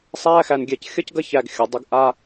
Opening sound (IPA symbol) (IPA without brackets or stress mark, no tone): sˤ